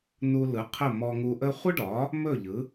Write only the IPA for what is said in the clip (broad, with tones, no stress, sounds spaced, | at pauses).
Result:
n u˧ l ɯ˩˥ qʰ ə˥˩ m ɔ˧ ŋ u˧ ʔ ə˥ χʷ ɯ˥ ɖ ɒ˩˥ | m ɵ˥˩ ʎ ɯ˩˥